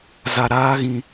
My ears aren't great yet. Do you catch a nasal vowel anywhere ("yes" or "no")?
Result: yes